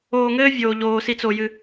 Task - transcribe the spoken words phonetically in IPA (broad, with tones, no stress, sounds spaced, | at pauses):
oː˨ ŋ ɘː˦ vʲ oː˩ ʎ oː˩ s i˨ t͡s o˩ j ɨ˨